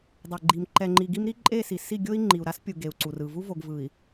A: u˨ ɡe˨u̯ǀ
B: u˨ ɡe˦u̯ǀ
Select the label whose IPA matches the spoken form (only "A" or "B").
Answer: A